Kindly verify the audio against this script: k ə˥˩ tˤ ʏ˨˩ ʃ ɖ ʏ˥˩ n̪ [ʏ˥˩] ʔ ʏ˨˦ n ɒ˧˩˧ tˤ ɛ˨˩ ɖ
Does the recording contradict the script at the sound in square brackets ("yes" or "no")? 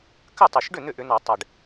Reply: no